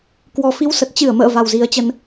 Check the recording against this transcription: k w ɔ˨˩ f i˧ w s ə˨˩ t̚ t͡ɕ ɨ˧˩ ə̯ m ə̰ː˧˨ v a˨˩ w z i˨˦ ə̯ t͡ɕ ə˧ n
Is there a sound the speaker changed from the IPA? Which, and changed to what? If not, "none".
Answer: none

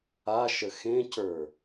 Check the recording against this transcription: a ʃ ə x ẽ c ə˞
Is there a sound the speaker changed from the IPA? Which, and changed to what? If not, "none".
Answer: none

